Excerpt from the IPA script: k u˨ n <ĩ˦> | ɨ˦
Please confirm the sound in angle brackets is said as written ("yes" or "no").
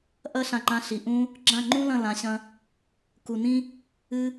yes